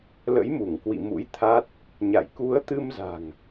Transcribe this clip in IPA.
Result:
l ə̰˧˥ j m u˧˩ ŋ k w ḭ˧˨ m ṵ˧˥ j t̪ʰ a˦˥ t̚ | ɲ a̰˧˨ j k u˨˦ ə̯ t̪ ɨ˧ m z a̤˨˩ ŋ

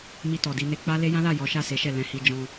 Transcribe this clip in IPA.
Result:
m i˧ t ɔ˨ d i˧ n e˧ k͡p a˦ l e˦ j ã˦ l a˦˨ j ɔ˨˦ ʃ a˦˨ s e˨˦ ʃ ɛ˦˨ l ɛ̃˧ h i˧ d͡ʒ ɔ̃˧

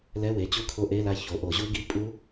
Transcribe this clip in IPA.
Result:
l ɛ˧˥˧ w e˩˧˩ t͡ɕ u˦˥ kʰ o˦˨ ʔ e˧˥˧ l a˦˨ ç o˩˧˩ ʔ o˧˩˧ ʑ u˦˥ ɡ i˧˥˧ pʼ u˦˥

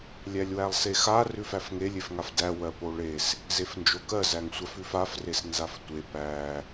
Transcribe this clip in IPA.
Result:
lʲ æ lʲ w æ lˠ s e x a r ʉ f æ f ŋ e lʲ e f ŋ a f d æ w ɜ p o ɭ e s | z e f n d͡ʒ o k ɜ z æ ŋ sʷ a f ʉ f a f r e s n z a f tʷ e p æ

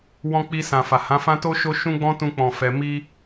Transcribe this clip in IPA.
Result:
w ɔ̃˧ k͡p i˧ s ã˨ f a˨ h ã˨˦ f ã˦ t o˦ ʃ o˦ ʃ ũ˦ ɡ͡b ɔ̃˦ t ũ˧ k͡p ɔ̃˨ f ɛ˧ m i˦

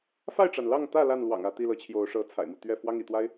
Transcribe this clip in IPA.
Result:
f a˥˨ ɪ̯ ʈ͡ʂ a˩ n l ɑ˥˨ ŋ t̪ ä˥˨ l a˥˨ n l w ɑ̰˨˩ ŋ ä˥˨ t̪ i˥˨ l ɤ˨˦ t͡ɕʰ j o˨˦ ʊ̯ ʂ ɤ˨˦ t͡sʰ a̰˨˩ ɪ̯ m u˥˨ t̪ ɥ ɛ˥˨ f w ɑ˦ ŋ ḭ˨˩ t̪ w a˦ ɪ̯

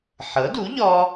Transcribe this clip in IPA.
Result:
ħ ɤ˩˥ d u˩˥ ʎ ɔ˧

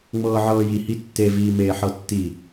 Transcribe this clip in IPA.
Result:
ŋ͡m ɤː ʕ ɤː j i h i tː e v iː m eː ħ ɤ tː i

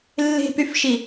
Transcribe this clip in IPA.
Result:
lː e̤ p y f ʃ i

